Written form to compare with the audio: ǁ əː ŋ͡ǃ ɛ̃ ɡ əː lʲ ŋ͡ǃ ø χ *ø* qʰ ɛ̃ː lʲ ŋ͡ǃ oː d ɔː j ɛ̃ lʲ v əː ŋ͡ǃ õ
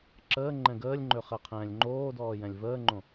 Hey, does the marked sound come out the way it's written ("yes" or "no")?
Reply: no